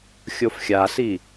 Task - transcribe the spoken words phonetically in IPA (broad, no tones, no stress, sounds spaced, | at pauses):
xʲ o f xʲ a s i